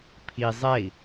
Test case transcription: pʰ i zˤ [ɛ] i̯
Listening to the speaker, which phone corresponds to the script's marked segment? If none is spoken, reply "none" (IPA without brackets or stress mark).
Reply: ɛ